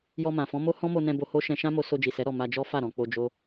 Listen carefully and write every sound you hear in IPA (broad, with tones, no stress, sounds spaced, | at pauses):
j ɔ˧ m ã˨ f ɔ̃˨˦ m o˦ h ɔ̃˦ m o˧ n ɛ̃˧ b o˧ h o˦ ʃ ɛ̃˧ ʃ ã˦ m o˧ s o˧ d͡ʒ i˨ s ɛ˨˦ ɾ ɔ˦˨ m a˧ d͡ʒ ɔ˦ f a˦˨ ɾ ɔ̃˨ k͡p o˧ d͡ʒ o˦